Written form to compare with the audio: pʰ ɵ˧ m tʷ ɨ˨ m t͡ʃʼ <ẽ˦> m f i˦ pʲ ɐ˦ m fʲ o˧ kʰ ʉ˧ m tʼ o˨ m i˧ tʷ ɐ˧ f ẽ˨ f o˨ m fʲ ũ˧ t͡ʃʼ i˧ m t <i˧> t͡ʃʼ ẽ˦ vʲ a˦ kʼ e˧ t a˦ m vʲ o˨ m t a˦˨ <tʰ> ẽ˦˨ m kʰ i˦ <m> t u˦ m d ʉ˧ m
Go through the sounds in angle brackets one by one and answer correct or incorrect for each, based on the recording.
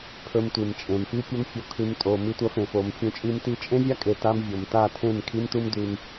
incorrect: ẽ˨, correct, correct, correct

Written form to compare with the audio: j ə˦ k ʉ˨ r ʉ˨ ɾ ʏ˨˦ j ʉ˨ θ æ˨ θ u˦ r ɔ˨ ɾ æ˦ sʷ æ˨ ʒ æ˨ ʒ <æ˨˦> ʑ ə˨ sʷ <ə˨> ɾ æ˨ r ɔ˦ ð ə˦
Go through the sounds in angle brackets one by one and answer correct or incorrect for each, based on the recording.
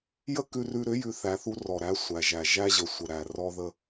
incorrect: æ˦, correct

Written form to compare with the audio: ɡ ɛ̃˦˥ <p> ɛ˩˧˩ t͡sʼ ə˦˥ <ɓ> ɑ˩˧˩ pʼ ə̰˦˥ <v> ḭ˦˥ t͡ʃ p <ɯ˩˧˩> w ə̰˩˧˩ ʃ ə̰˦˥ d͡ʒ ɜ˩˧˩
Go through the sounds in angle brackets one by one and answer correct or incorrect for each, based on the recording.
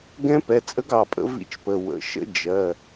correct, incorrect: ɡ, correct, incorrect: ə˩˧˩

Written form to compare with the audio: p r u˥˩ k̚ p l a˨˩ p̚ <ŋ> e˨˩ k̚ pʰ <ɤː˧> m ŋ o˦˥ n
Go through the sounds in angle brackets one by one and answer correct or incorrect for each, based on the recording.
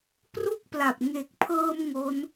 correct, correct

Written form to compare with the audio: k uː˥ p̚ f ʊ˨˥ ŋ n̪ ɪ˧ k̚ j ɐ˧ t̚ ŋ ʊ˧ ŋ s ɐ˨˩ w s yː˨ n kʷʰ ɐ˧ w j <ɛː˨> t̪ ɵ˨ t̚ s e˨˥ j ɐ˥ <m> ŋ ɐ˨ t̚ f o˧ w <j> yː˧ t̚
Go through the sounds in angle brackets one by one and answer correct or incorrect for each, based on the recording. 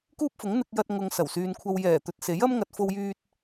incorrect: ɛː˨˩, correct, correct

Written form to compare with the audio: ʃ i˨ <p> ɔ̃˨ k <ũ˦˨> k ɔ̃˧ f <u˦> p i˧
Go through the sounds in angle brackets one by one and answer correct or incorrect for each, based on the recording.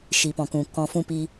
correct, incorrect: ũ˨, incorrect: ũ˦

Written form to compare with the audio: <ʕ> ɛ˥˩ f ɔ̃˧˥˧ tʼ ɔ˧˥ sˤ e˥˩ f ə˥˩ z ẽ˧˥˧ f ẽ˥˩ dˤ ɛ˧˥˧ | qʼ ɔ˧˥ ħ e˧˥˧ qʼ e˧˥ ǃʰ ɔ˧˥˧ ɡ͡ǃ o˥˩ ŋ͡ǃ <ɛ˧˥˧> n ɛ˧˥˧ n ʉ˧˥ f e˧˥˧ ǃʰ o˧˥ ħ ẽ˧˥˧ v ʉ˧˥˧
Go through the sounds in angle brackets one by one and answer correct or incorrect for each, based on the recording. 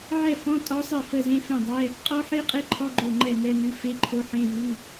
correct, incorrect: ɛ˥˩

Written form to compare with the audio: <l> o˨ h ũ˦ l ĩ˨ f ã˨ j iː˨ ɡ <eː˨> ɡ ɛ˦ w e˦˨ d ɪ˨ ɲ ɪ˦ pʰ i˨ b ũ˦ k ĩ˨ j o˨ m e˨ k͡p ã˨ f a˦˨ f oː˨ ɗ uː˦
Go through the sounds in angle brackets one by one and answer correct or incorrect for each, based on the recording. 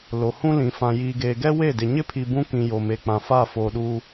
correct, correct

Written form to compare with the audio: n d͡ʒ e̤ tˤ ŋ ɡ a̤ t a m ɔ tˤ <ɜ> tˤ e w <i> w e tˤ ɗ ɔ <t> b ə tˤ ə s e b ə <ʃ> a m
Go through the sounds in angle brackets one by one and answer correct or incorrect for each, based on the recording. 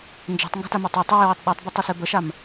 correct, incorrect: e, incorrect: tˤ, correct

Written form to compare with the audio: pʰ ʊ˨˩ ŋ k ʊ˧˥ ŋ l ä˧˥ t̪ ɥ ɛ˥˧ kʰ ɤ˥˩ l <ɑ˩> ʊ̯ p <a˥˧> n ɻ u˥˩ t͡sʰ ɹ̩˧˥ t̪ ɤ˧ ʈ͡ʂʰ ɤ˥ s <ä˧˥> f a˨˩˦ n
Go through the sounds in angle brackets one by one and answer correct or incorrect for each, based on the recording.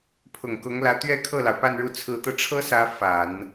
correct, correct, correct

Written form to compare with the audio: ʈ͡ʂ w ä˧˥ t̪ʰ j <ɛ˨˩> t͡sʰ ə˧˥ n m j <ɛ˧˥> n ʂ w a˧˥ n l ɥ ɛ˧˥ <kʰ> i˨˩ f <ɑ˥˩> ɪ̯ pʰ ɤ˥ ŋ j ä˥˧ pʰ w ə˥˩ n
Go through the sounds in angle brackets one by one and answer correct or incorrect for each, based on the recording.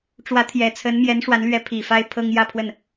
correct, correct, incorrect: pʰ, incorrect: a˥˩

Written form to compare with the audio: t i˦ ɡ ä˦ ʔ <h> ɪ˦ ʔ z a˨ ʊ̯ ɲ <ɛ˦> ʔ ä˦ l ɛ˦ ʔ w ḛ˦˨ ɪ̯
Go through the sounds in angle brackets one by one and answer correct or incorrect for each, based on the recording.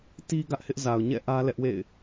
correct, incorrect: ɛ̰˦˨

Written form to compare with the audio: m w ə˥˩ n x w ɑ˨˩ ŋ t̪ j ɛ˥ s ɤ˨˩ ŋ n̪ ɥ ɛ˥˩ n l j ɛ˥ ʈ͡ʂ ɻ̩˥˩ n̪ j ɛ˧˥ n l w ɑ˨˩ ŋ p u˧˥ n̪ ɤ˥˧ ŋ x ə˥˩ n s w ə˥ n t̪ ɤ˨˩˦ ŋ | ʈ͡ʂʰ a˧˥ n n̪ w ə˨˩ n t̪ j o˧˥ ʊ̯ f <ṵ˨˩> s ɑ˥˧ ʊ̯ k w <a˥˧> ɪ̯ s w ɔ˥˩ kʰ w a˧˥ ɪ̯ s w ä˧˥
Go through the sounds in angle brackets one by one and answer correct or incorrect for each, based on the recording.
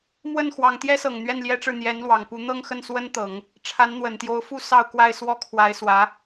incorrect: u˥˧, correct

